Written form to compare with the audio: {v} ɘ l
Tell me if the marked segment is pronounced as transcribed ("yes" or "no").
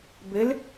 no